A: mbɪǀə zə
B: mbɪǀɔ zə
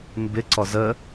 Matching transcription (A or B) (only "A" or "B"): B